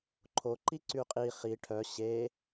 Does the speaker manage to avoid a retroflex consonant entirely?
no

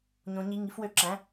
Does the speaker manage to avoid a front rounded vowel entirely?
no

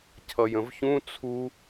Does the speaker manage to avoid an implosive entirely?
yes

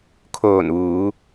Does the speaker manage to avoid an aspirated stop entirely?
no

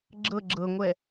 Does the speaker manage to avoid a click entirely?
no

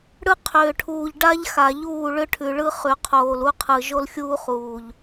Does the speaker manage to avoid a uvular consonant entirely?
no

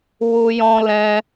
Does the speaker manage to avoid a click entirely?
yes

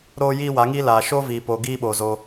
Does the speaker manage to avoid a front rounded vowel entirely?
yes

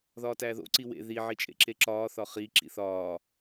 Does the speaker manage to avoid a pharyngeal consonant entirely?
no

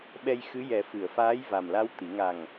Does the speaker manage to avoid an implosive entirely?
no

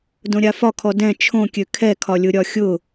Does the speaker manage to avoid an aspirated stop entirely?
no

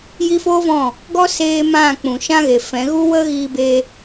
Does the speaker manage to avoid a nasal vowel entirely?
no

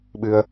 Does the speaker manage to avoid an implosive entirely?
no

